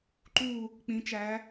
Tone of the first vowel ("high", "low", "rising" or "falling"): falling